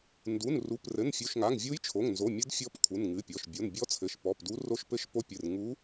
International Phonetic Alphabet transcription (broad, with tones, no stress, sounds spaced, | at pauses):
n d u˩˧˩ n r u˩˧˩ p r ɘ˩˧˩ n fʲ u˩˧˩ ʃ ŋ a˩˧˩ ŋ vʲ u˧˥ j t͡ʃʰ o˩˧˩ ŋ n z o˩˧˩ mʲ ɘ˧˥ d fʲ ɔ˧˥ p kʰ u˩˧˩ n ŋ ɨ˩˧˩ pʲ ɔ˩˧˩ ʃ bʲ o˩˧˩ n bʲ ɔ˧˥ t͡sʰ ɘ˩˧˩ ʃ p ɔ˩˧˩ p d u˧˥ r o˧˥ ʃ p ɘ˧˥ ʃ p o˧˥ pʲ ɨ˩˧˩ r ŋ u˧˥